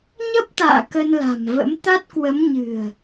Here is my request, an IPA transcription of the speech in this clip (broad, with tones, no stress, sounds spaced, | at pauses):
ɲ ə˦˥ p̚ t̪ a̰ː˧˨ k ə˧ n l a̤˨˩ m v ə̰˧˥ m t̪ a˦˥ t̚ k w ə˨˦ m ɲ ɨ̤˨˩ ə̯